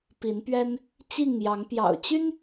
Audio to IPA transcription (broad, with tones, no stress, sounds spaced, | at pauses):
p i˨˦ n p ɥ ɛ˦ n | t͡ɕ i˥˨ ŋ j ɑ˨˦ ŋ p j ɑ̰˨˩ ʊ̯ t͡ɕ y˦ n